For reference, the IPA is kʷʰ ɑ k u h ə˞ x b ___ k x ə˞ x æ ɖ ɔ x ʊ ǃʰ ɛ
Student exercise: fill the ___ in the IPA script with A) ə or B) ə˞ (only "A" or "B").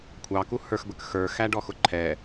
A